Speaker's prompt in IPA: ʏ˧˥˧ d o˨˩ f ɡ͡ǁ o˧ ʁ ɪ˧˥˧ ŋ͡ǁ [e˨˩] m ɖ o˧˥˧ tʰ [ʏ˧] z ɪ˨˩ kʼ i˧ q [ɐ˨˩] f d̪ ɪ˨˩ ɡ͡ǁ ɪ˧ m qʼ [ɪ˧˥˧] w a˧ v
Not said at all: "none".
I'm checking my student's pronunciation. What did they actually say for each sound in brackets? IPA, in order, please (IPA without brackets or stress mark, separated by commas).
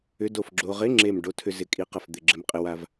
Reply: e˨˩, ʏ˧, ɐ˨˩, ɪ˧